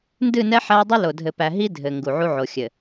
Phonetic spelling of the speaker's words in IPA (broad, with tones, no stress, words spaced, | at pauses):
ndɨ˦˨nɛ˦ ħæ˦dˤɨ˦lo˨ dʱɘ˨pæ˨ɦi˦ dʱɘ˨ ŋɡu˨ʕu˦ʕo˨ xʲɘ˨